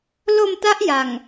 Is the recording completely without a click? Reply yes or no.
yes